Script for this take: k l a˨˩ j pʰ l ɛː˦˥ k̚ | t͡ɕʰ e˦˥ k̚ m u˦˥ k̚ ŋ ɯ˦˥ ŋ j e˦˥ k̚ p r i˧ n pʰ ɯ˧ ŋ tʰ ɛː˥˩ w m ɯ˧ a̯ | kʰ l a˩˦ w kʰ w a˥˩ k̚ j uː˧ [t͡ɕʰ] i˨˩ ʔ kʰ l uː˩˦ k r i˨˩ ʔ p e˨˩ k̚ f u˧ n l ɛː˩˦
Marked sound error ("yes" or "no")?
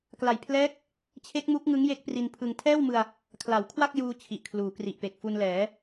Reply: no